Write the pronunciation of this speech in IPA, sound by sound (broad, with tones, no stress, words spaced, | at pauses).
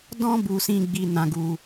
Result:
dɔ̃˦bu˧sĩ˧ ɡ͡bi˧ nã˧ɡu˧